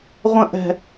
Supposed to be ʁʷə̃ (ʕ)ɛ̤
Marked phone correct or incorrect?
incorrect